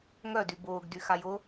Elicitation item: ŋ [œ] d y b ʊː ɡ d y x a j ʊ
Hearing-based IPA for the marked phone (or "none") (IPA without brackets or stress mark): œ